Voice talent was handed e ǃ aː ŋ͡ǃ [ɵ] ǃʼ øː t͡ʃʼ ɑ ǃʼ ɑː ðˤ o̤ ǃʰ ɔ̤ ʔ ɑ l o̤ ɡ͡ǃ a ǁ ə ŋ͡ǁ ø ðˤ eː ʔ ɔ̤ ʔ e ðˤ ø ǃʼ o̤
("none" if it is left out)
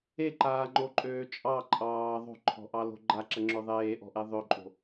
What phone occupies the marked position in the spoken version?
o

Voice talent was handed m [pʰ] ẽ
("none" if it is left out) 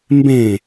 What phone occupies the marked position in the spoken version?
b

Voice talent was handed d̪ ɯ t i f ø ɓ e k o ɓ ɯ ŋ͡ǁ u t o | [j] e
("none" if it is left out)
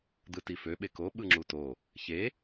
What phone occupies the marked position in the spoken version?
ç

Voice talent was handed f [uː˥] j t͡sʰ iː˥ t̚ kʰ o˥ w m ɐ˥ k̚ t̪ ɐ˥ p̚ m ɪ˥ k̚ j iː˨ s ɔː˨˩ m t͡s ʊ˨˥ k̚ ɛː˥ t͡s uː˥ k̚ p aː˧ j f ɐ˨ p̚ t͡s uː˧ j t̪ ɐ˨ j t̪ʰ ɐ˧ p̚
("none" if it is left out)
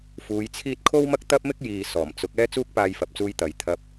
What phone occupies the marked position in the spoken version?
uː˨˧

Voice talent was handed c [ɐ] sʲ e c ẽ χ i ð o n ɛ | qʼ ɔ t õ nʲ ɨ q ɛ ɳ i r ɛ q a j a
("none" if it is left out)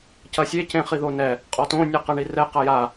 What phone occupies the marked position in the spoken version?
ɐ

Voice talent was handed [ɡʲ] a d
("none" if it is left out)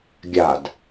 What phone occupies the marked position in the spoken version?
ɡʲ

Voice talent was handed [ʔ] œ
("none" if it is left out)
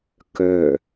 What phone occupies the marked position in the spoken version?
k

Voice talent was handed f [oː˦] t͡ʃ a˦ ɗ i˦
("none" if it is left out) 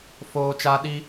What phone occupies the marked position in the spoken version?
oː˦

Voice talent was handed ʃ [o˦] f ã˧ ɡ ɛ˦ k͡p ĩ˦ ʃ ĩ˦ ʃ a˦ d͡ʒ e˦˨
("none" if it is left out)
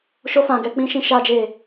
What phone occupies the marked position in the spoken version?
o˦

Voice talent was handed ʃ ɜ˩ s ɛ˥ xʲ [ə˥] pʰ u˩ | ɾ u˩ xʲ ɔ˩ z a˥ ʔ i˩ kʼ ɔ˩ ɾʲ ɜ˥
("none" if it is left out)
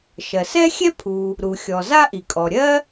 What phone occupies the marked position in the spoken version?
ɛ˥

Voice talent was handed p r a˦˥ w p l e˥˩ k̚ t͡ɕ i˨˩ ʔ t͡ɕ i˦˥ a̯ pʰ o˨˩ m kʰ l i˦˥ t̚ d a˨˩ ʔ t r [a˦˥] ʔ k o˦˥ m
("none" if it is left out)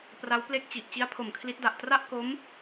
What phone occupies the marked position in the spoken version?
a˥˩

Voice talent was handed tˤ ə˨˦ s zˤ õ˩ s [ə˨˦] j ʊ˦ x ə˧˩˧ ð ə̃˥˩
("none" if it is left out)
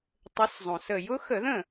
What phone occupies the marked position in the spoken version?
ə˧˩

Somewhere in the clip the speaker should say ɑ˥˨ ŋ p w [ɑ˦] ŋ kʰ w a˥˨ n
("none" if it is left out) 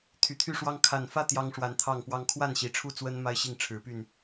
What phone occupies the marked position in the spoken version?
ɑ˦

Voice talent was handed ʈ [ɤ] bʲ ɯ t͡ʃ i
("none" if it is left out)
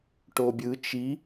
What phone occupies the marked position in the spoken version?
o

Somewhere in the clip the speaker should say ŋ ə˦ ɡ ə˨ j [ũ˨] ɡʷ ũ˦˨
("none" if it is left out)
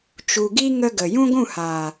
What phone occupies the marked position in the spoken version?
ũ˦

